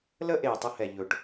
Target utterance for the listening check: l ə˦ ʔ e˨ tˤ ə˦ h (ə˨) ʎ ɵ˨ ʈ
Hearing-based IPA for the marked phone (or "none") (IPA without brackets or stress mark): ɛ˨